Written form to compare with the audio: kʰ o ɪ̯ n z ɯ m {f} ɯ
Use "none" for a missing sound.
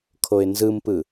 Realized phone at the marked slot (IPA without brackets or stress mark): p